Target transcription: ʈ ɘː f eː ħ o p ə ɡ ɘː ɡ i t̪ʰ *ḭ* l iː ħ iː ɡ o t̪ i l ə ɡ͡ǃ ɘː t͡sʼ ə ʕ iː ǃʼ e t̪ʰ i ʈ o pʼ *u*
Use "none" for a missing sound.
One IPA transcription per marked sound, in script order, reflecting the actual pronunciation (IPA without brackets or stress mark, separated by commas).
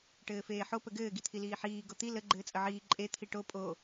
i, o